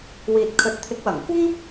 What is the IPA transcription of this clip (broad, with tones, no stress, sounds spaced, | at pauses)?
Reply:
w iː˨ t̚ kʰ ɵ˨ t̚ t̪ʰ ɪ˨˥ k̚ w ɐ˨˩ ŋ kʷ ɐ˥ ŋ